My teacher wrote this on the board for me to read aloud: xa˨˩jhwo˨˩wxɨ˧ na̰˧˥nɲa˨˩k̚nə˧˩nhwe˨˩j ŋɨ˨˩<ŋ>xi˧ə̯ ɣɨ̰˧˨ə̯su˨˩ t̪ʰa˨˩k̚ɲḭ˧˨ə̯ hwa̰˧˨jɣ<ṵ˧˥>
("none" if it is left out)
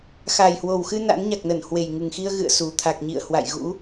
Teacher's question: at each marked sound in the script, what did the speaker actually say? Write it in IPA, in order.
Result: ŋ, ṵ˧˥

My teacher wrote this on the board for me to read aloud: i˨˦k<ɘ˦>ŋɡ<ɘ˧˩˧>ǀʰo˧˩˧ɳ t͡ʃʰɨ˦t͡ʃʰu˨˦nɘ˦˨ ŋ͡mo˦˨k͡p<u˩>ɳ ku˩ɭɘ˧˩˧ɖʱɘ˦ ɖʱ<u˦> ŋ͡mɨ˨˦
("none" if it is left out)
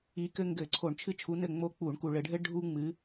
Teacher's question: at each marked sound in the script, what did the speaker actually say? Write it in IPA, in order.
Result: ɘ˦, ɘ˧˩˧, u˧˩˧, u˦

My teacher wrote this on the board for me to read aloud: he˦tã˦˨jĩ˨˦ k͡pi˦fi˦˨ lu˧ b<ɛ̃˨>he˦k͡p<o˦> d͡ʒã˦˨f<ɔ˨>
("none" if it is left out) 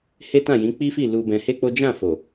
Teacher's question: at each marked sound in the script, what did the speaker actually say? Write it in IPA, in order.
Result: ɛ̃˧, o˦, o˨

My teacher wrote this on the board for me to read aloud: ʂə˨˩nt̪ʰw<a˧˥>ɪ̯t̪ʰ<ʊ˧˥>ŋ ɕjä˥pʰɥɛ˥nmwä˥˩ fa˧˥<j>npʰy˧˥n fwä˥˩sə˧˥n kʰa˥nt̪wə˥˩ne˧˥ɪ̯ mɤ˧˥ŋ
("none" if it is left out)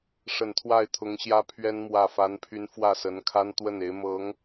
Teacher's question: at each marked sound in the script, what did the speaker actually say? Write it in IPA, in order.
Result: a˥˩, ʊ˧˥, none

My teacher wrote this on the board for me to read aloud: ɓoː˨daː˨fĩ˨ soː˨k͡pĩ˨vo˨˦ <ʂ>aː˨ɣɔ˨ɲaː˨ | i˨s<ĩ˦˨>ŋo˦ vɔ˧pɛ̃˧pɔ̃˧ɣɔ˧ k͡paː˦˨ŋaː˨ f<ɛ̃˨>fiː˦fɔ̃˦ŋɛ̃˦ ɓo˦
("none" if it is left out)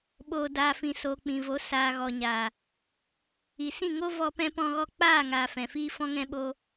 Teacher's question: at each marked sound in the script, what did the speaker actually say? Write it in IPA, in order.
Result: s, ĩ˦˨, ɛ̃˨

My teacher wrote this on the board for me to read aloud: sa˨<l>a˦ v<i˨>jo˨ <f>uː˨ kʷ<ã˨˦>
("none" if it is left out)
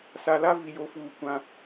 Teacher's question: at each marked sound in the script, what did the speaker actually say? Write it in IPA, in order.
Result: l, i˨, f, ã˨˦

